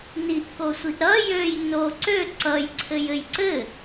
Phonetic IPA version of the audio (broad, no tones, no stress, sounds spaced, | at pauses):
n i ʔ k o sʷ i ʔ ɾ ʌ j ø j n o ǀ ø ǀ ʌ j ǀʰ ɘ j ɘ j ǀ ɘ